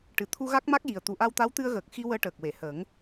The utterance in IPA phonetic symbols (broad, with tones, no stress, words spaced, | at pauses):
ʈɨ˨˩t̪ʰu˧ ɣa˦˥k̚ma˦˥k̚ji˨˩ə̯ t̪u˨˩ʔa˧wt̪a˧˥w t̪ɨ˧ə̯ɣəː˨˩k̚xi˧ wəː˧ʈəː˨˩k̚we˨˩˨ həː˨˩˦ŋ